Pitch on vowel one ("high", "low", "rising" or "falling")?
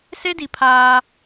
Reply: high